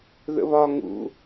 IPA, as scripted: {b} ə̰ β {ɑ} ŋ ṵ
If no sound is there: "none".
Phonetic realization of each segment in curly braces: ð, ɒ

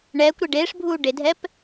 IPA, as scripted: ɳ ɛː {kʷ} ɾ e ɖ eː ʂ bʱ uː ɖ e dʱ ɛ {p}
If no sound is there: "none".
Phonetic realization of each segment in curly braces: kʷ, p

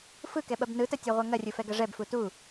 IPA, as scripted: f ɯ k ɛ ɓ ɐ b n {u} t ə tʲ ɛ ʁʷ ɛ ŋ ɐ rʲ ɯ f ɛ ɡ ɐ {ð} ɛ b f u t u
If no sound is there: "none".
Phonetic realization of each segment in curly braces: ɯ, ʐ

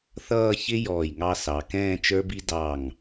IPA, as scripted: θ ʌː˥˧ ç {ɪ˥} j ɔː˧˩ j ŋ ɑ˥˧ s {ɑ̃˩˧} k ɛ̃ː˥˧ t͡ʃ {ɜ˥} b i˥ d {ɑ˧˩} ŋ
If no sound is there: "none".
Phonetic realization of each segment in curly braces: ɪ˥, ɑ˩˧, ə˞˥, ɑ˧˩

